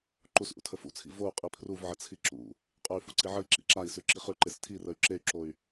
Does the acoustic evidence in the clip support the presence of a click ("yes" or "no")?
yes